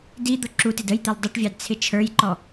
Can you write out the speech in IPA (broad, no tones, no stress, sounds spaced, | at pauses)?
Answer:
d i d̪ ʊ ǁ u t ɪ d ə j t̪ ɪ l dˤ ə ʈ vʲ ɑ d t͡sʰ ɪ t͡ʃʰ ə˞ j ǃ ɔ